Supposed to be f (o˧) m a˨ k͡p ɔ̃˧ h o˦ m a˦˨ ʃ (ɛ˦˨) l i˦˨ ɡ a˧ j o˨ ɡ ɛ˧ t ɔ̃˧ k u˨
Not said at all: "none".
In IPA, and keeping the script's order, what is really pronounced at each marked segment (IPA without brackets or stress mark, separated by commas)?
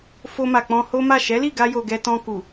o˧, ɛ˨˦